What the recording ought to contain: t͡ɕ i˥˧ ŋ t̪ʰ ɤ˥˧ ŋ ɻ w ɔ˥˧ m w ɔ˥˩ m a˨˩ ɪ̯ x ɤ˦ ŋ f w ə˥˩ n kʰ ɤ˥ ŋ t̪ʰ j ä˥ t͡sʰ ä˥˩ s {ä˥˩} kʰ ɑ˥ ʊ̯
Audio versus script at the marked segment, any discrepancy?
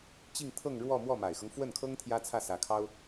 yes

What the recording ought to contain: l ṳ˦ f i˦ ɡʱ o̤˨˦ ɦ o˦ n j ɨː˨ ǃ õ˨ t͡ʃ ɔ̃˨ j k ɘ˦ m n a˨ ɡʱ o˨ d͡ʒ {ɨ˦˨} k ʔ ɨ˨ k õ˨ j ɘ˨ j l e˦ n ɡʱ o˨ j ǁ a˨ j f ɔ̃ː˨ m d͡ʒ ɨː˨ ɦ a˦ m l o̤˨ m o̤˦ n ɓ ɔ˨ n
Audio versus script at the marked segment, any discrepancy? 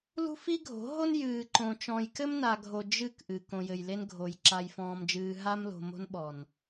no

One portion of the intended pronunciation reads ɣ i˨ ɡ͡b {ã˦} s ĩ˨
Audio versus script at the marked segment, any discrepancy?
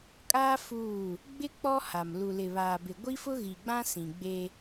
no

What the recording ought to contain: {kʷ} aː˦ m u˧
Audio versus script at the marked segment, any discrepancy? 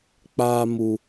yes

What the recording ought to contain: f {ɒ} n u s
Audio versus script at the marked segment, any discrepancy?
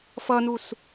yes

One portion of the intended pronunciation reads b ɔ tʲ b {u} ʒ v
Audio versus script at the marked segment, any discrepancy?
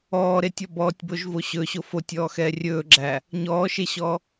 yes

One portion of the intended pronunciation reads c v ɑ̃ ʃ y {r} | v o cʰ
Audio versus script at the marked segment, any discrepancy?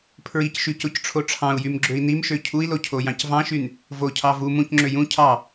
yes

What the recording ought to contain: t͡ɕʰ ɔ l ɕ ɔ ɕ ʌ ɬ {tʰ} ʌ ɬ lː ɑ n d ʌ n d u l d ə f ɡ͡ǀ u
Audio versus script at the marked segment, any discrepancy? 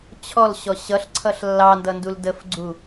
yes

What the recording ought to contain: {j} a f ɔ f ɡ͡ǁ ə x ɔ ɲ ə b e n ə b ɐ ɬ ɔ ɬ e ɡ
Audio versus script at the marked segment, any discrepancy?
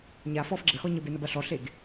yes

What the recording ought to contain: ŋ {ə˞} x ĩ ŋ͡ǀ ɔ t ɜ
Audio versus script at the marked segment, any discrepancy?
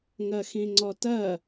yes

